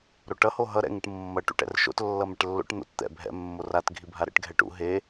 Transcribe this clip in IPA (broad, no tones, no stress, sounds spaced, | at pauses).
ɾ o ʈ ʌ h o ɦ ʌ ɾ ɛ̰ ŋ ɯ ʈ mː ʌ ʈ ṵ ʈ ɛ̰ r ʃ o̰ t lː ʌ m ɛ ʈ lː o̰ ʈ n̪ o̰ t t̪ ɛ̰ bʱ ɛ̰ mː o r a t ɡʱ i bʱ a ɾ ɛ̰ ʈ ɡʱ ɛ ʈ ṵ ɦ e